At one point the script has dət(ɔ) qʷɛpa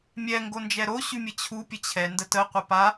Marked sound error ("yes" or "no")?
yes